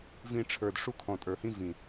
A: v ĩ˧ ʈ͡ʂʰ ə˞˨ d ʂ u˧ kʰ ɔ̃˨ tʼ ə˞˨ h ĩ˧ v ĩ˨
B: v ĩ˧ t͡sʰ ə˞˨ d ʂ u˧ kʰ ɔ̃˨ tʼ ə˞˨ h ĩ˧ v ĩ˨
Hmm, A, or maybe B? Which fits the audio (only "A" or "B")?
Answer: A